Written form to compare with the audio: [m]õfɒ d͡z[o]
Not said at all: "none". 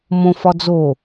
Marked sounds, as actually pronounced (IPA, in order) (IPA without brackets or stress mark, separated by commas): m, o